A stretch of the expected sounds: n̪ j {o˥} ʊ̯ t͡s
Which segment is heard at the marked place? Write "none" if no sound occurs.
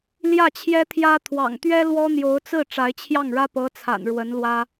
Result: o˧˥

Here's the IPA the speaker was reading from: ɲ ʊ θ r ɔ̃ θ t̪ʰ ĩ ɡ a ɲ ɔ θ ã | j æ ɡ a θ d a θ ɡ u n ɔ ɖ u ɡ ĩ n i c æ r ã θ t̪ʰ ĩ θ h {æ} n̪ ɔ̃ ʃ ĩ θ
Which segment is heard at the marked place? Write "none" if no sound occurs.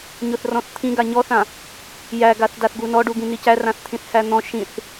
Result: æ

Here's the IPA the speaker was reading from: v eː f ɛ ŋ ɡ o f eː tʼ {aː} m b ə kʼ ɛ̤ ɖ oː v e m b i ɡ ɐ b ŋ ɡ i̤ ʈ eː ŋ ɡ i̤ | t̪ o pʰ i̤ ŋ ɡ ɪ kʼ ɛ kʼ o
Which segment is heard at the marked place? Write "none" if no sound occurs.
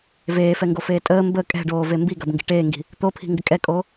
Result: əː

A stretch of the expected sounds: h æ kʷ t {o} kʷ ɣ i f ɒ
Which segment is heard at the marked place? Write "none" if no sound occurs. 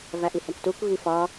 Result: u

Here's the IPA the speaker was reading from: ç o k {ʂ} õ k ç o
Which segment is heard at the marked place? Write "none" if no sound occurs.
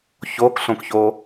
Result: ɬ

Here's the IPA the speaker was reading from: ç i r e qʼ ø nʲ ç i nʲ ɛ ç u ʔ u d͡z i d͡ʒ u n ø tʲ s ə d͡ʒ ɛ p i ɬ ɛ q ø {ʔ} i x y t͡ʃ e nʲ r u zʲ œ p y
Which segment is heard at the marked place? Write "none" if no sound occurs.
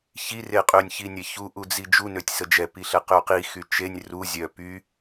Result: q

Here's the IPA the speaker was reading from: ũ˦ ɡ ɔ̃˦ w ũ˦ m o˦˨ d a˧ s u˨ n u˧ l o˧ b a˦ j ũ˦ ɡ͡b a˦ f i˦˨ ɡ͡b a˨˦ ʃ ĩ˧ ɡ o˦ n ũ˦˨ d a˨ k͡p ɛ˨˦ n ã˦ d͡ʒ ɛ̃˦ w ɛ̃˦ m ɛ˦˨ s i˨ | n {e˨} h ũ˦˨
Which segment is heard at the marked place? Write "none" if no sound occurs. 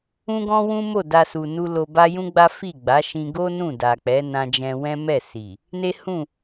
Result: e˦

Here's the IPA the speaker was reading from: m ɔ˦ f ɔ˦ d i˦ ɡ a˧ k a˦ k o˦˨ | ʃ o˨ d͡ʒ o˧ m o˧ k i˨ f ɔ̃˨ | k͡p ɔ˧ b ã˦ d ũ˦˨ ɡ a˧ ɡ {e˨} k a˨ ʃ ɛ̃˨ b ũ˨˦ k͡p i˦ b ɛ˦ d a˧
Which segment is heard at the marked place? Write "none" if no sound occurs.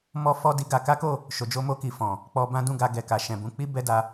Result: ɛ˨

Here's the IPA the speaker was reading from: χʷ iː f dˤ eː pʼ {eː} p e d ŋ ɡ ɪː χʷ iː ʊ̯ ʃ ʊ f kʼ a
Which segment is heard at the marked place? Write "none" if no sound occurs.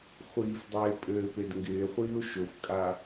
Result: ɘː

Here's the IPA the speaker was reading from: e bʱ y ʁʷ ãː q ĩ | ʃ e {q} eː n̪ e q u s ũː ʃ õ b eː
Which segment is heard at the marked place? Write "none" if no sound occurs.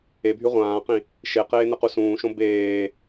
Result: q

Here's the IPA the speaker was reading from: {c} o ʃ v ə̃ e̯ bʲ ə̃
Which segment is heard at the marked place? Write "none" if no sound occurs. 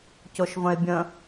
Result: c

